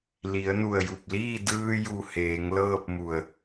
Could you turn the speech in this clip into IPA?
l i˩˧ ə̯ n u˧˩ ə̯ j u˧˩ p̚ l iː˥˨ d ɯː˧ j u˧˩ h eː˩˧ ŋ l ɤː˥˨ p̚ m u˧˩ ə̯

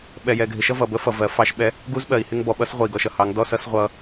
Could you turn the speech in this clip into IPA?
ɓ ɛ˨ j ɛ˨ ɡʱ ɪ˨ ʃ ʌ˦ v ʌ˨ b ə˦ f ʌ˨ v ɜ˨ f ɑ˦ ʃ ɓ ɛ˦ | ɡ u˦ z ɓ ɜ˨ i̯ h ɪ˦ ŋ b ɔ˨ ɓ ʌ˦ s ʁʷ ə˨ i̯ ɡ ɔ˨ ʃ ʌ˦ h ɑ˨˦ ŋ d ɔ˦ s ʌ˦ s ʁʷ ʌ˦

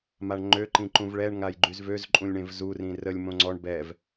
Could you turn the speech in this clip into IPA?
m a ɳ ŋ͡ǃ ø ǃ ĩ ǃ ũ v ɭ ɛ ɳ ŋ a j ɡ͡ǃ y z v ø z ǃʼ ũ lʲ ɳ ẽ v z u r ĩ r ə lʲ m õ ŋ͡ǀ ɔ ɳ b ɛ v

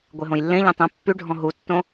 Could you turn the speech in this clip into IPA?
ɡʷ e ɦ õ j lː ẽ ʎ ẽ tˤ ẽ pː y ɖʱ ɔ̃ ɦ u tː õ

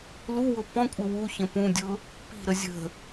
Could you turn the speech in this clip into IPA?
l u w ʊ p ɔ̃ kʷʼ ɪ w u ç ə̃ p ũ dʲ ʊ | p i̤ ɾ ə zʲ ə̤

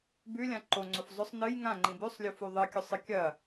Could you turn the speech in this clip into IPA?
b ʉ lʲ ã ǃ o ŋ͡ǀ o f zˤ ɵ sˤ n ɨ j ŋ ã ŋ͡ǃ ĩ b ʉ sˤ lʲ o f u ðˤ ɨ kʲ ɵ sˤ ɨ kʲ ɐ

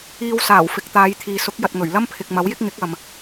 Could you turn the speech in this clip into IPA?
iː˧ w s aː˨˩ w f ɪ˨ k̚ t̪ aː˨˧ j t̪ʰ iː˨ s ʊ˨˥ k̚ j ɐ˨ t̚ ŋ ɵ˨˩ ɥ l ɐ˥ m pʰ ɪ˨ k̚ m ɐ˨˥ w j ɪ˥ k̚ ŋ ɪ˨˥ k̚ ɐ˨ m

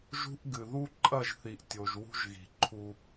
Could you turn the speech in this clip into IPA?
ʒ ṳ˦ ʔ ɡ ɨ˨ ð u˦ ǃʼ ɐ˦˨ ʒ θ i˨ ʔ tʲ o˨ ʒ w ṳ˦ ʒ ɣ i̤˨ ǃʰ u˦

